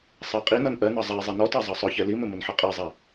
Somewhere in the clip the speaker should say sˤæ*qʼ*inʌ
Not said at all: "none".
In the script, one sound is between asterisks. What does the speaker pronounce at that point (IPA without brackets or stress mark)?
qʼ